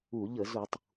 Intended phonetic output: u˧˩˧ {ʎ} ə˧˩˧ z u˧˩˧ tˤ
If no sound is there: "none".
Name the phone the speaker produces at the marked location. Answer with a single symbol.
ʎ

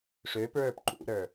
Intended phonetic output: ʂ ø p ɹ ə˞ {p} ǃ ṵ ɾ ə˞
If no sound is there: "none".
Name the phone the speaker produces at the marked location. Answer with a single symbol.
p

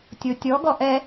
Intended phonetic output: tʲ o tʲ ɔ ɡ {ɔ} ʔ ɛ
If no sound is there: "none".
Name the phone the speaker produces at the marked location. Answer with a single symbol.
ɔ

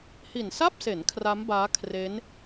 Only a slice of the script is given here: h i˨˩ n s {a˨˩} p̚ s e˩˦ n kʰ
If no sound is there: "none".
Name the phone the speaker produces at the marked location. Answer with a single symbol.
a˥˩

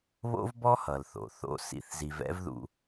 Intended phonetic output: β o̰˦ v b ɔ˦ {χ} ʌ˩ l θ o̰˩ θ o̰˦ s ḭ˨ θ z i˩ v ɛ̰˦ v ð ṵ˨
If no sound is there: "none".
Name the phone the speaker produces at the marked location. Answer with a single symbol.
h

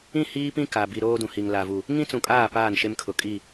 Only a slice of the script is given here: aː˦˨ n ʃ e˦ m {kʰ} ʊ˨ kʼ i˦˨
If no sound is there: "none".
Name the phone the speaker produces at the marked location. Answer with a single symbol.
kʰ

